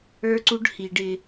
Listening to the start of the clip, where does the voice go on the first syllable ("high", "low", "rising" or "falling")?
high